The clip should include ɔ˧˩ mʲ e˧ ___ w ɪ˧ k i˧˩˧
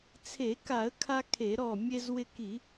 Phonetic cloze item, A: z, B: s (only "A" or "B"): A